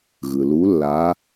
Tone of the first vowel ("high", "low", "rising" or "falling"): low